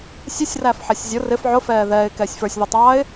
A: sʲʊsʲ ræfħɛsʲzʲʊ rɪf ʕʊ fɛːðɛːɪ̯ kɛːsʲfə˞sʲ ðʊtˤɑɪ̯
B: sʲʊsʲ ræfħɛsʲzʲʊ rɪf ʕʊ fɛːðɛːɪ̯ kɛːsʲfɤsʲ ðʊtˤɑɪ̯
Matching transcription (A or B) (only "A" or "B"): A